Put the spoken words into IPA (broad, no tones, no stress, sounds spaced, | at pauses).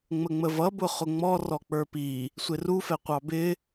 ŋ͡m ə ŋ͡m ə v ʌ b ʊ χ ʊ ŋ͡m ɔ r ɔ k͡p ə˞ p i | sʷ ɪ r u f ɛ qʷ ɑ b ɪ